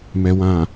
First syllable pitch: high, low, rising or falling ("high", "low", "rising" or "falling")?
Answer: low